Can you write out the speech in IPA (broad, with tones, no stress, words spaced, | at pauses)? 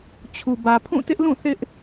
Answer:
t͡ɕʰu˨ bä˨pʰũ˦˨ tɪ˦ʔlũ˦˨ θɪ˦ʔ